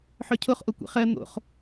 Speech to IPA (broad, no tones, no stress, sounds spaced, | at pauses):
ħ œ cʰ o χ ʔ o kʷ ḛ χ ɜ n̪ o̰ χ